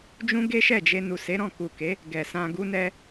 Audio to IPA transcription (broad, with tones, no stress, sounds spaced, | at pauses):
d͡ʒ ũ˦ ɡ e˦ ʃ ɛ˦˨ d͡ʒ e˧ n u˨ s e˨˦ ɾ ɔ̃˦˨ k u˨ k e˨˦ | ɡ ɛ˨ s ã˧ ɡ u˦ n ɛ˧